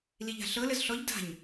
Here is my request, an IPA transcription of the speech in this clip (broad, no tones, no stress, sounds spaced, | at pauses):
l i ʎ a̤ ɬ ɤ l ə z ɬ ɔ ʎ d a̤ ɲ